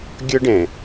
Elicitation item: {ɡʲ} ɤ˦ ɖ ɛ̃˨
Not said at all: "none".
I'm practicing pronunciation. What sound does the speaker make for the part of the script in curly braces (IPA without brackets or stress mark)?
ɡʲ